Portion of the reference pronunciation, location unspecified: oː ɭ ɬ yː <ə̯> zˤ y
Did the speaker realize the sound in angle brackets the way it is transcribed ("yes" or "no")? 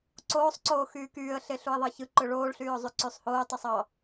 no